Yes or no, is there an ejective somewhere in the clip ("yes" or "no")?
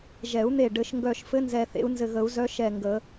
no